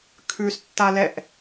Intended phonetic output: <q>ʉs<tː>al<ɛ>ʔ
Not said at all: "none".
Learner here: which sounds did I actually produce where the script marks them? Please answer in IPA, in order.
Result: kʰ, tː, ɛ

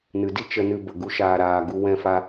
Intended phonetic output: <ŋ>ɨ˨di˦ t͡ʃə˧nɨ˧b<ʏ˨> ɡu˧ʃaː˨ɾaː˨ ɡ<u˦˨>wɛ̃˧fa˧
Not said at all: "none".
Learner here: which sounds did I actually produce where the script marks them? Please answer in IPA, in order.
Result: n, ə˨, u˧

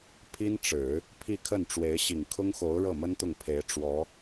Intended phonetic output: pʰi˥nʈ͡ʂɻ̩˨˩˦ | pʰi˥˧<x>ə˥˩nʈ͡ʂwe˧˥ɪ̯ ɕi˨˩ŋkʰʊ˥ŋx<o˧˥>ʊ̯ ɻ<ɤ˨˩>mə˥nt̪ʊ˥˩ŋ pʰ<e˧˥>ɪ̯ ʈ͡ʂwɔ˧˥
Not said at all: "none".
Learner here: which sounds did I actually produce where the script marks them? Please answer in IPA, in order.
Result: kʰ, o˧˥, ɤ˥˩, e˧˥

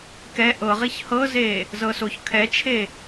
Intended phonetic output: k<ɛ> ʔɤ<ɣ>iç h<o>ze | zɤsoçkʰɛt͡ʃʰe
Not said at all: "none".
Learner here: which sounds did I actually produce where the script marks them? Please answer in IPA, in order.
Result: ɛ, ʁ, ɤ

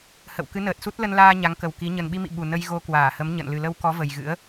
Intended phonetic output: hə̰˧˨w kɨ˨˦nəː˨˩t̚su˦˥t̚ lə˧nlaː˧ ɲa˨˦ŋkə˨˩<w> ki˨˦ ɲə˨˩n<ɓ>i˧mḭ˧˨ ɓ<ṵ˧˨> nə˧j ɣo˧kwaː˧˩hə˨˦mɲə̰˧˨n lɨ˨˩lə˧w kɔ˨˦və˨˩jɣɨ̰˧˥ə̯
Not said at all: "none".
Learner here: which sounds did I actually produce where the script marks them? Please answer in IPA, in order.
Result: w, ɓ, u˨˩

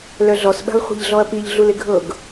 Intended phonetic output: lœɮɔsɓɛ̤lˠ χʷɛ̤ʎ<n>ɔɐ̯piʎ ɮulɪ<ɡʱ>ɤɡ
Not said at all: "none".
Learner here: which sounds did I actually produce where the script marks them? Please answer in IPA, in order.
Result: ɮ, ɡʱ

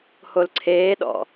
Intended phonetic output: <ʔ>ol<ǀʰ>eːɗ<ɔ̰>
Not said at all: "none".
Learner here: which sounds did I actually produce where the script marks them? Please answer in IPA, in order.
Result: h, ǀʰ, ɔ̰

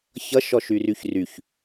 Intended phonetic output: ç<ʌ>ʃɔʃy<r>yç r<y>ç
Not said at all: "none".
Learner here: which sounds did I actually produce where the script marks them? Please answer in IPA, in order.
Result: ʌ, r, y

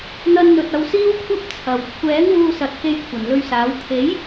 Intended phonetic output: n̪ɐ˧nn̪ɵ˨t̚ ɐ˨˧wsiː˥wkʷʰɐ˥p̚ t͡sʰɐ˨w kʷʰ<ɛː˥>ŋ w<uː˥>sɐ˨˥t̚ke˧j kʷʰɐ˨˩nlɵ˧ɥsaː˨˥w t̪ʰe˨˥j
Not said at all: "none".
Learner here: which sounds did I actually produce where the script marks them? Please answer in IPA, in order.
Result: ɛː˨˥, uː˧

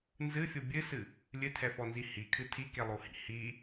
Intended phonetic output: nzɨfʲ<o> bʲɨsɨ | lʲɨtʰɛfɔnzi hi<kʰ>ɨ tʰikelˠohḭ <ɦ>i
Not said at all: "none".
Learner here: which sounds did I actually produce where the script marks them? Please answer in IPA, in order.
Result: o, kʰ, h

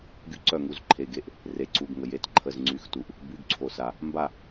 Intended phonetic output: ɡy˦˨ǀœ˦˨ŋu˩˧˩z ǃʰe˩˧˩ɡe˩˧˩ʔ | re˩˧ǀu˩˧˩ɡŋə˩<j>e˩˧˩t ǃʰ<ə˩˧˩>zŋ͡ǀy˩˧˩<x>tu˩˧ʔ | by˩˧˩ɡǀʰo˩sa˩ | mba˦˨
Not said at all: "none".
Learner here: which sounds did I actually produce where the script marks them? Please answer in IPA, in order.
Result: j, ə˩˧˩, x

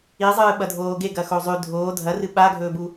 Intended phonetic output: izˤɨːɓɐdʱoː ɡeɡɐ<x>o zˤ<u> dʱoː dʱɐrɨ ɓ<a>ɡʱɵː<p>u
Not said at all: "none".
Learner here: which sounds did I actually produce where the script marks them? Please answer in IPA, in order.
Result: x, ʉ, a, b

